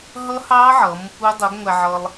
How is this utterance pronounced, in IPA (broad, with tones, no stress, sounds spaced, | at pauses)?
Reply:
ɦ ʌ˦˥ h ɑ˦˥ ʕ ʌ˨˥ m | u˦˥ dˤ u˨˥ ɡ ŋʷ æ˧ ʕ ʌ˧ lˠ